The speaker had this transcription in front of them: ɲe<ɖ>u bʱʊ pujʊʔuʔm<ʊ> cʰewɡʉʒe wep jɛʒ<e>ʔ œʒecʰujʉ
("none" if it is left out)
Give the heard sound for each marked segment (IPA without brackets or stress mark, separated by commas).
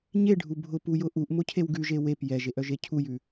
ɖʱ, ʊ, e